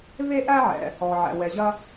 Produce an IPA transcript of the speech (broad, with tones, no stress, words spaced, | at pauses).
ve˥ʔæ˥ʕɛ̰˩ | ɔ˩ʕæ̰˩ wɛ˩ʑɐ˥